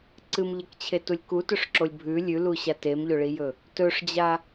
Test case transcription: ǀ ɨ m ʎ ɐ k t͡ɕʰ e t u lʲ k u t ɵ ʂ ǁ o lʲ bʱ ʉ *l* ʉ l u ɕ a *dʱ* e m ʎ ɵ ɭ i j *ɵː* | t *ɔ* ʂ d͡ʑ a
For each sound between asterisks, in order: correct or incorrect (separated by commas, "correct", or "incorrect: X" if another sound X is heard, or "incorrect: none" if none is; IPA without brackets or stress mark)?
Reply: incorrect: lʲ, incorrect: t, incorrect: ɵ, incorrect: ɵ